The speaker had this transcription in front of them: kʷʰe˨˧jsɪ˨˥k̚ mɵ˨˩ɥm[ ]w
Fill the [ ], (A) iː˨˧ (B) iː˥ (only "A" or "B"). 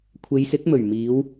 A